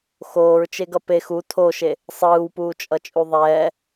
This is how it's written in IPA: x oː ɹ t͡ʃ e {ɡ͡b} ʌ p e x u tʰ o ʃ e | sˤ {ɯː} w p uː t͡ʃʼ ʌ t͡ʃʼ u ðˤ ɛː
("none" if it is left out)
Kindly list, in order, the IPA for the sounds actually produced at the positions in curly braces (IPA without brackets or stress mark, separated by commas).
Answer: ɡ, ɯː